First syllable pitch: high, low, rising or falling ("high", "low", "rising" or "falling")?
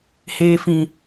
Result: low